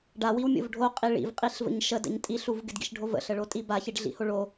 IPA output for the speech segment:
ɖ a w i w mʲ o̰ v ɖʱ o qʼ i ɭ ḭ v qʼ i ɬ v ə̰ ɲ ʃ ə d ə̰ ɲ tʼ i ɬ u v ɡ ɪ d ɡ ḭ ʃ ɖʱ o v ə̰ ɬ ə ɭ o tʼ i b a ç i ɖ ɮ ḭ h o ɭ o

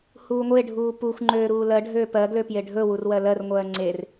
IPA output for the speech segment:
h uː ŋʷ e ɖʱ uː p u xʷ ŋ͡ǃ øː ɾ uː l ɜ ɖʱ øː p ɜ ɡ l ø p j e ɖʱ ɵ w u r w ɜ l ɜ r ŋʷ ɜː ŋ͡ǀ e r

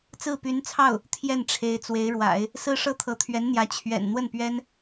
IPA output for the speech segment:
t͡s ɹ̩˥˩ p y˧˥ n t͡sʰ ɑ˥˩ ʊ̯ | t̪ʰ j ɛ˥˩ n ʈ͡ʂʰ e˧˥ ɪ̯ t͡s w e˧˥ ɪ̯ ɻ w a̰˨˩˦ ɪ̯ | s ɹ̩˥ ʂ ɤ˥ t̪ʰ ɤ˧˥ t̪ʰ ɥ ɛ˧˥ n n̪ j ä˧˥ t͡ɕʰ ɥ ɛ̰˨˩ n n̪ w ə˥˩ n p ɥ ɛ˥ n

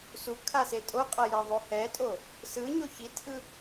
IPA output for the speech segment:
s u kʰ a s e tʼ o qʼ ʌ j ɛ ðˤ o h ɛ tʼ o | s ɯ ɲ o ç i tʰ ɯ

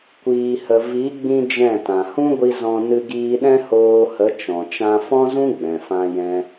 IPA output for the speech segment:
kʷ iː˨ h ə˨ v i˨˦ ɡ͡b ĩ˦ d͡ʒ ɛ̃˦˨ t ã˨ h ũ˦ ɡʷ i˧ z ɔ̃˧ n ɨ˧ ɡ iː˧ ɗ ɛ̃˦ h oː˧ h ə˨˦ t͡ʃ ɔ̃˨ t͡ʃ ã˧ f ɔ̃˦ z ũ˦ ɡ͡b ɛ̃˨ f ã˧ j ɛ̃˧

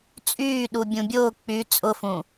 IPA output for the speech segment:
t͡sʼ yː ɗ u bʲ ũ bʲ ʊː k͡p y t͡sʼ ʊ f ũ

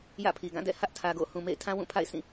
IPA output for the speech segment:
j ä̰˦˨ pʰ i˨ ɡ ã˦˨ d ɛ̰˦˨ h ä˦ ʔ tʰ ä˨ ɡ o̰˦˨ h ũ˨ m ḛ˦˨ ɪ̯ tʰ ã˦ w ũ˦˨ pʰ a̰˦˨ ɪ̯ sʰ ĩ˦˨

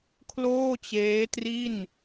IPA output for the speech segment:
kʰ l oː˥˩ t͡ɕ eː˦˥ t r i˥˩ n

